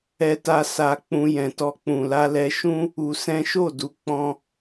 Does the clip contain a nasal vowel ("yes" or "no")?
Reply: yes